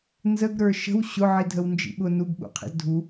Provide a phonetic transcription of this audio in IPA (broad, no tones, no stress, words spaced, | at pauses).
nzəɡɾə˞ ʃə̤w ɕʊʕi dʱəwnd͡ʒḭ ɓʊ nuɡɓṵqʰḭz dʱu